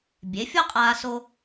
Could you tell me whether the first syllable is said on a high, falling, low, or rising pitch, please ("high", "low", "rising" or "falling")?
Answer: rising